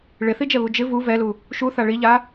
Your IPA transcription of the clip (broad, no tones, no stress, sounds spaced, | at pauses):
ɭ ɪ θ i d͡ʒ ɛ β u d͡ʒ ɪ v u v ɛ l u | ʃ u θ a ɭ i ʎ a